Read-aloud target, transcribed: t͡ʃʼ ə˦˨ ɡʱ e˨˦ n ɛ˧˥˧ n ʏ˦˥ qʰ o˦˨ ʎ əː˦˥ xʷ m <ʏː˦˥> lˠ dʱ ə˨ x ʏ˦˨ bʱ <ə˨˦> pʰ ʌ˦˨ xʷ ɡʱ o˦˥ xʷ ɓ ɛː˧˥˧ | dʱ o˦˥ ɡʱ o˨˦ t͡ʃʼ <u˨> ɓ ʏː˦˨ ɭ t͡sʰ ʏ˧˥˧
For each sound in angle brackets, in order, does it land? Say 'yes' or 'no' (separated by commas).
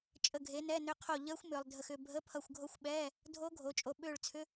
no, no, no